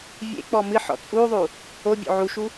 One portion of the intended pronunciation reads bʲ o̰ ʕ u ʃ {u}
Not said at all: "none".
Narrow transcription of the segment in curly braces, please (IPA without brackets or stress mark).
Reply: u